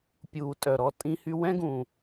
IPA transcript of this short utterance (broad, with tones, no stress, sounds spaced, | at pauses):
pʲ uː˨ tʼ œ˨ ɾ ɔ˧ tʼ ĩ˧ h y˧ w ɛ̃˦ ɡ ũ˨